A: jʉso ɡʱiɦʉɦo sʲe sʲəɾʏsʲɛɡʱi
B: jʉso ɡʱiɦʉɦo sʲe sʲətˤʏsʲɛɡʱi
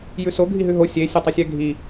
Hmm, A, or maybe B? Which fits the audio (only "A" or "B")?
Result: B